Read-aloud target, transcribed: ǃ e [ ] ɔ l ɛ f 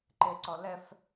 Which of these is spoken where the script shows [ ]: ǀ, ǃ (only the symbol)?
ǀ